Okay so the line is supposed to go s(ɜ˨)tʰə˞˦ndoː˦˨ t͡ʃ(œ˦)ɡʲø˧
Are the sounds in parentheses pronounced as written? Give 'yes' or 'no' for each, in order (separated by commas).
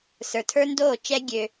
no, no